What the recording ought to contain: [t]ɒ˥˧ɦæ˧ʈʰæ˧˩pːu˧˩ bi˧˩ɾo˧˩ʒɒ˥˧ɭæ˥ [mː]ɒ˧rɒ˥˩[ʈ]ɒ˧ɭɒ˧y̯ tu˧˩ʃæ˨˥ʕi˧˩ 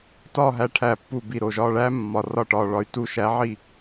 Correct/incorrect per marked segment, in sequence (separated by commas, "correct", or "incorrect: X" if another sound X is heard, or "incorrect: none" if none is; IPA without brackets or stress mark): correct, correct, correct